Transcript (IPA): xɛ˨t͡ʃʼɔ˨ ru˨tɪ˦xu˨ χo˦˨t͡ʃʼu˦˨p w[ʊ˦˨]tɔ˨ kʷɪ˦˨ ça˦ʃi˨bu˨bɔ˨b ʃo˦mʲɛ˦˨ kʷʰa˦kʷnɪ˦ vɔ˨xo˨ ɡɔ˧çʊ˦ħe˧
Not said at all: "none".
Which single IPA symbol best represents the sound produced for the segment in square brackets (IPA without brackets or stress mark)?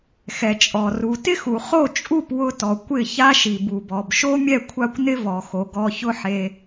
ʊ˧